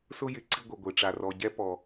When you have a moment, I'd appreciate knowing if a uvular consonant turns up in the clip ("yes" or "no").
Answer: no